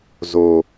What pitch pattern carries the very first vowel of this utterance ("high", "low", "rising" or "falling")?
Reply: low